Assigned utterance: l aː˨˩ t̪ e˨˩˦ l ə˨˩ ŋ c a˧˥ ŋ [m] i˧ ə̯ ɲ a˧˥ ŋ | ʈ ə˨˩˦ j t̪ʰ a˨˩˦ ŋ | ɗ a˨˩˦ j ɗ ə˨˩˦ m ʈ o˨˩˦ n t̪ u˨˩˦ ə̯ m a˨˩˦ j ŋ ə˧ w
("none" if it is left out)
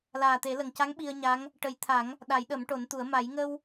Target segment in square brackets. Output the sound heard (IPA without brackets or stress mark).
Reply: ɓ